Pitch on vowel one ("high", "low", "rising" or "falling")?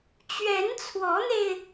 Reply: rising